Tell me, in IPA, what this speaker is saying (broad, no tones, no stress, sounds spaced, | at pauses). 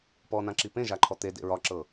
p ɔ n ã ǁ i p ẽ ʒ a ǃʰ ɔ t̪ e d ḛ ɹ ɒ ǁ ɤ